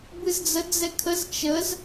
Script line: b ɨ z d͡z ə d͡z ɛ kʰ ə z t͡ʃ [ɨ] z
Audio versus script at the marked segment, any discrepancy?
yes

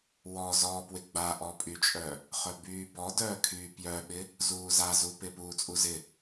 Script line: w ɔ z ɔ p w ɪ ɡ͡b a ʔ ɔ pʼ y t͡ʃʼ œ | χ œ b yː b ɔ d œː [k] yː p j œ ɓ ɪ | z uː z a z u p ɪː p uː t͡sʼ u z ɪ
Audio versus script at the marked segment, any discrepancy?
yes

